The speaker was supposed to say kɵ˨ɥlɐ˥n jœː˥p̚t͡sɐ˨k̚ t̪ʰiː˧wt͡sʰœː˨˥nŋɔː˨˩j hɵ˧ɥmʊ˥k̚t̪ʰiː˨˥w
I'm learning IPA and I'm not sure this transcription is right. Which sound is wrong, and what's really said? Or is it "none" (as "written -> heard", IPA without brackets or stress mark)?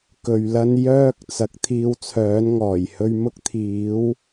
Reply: p̚ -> k̚